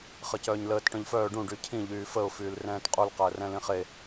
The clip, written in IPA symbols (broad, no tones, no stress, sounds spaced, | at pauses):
χ ə c œː ɲ l əː t ʈ œ̃ ʎ f œː ɖ ũ ɖ y cʰ ĩ ʎ yː f ə ʊ̯ f yː l r ɛ̃ː t qʼ u l q əː r ɛ̃ l ĩ χ e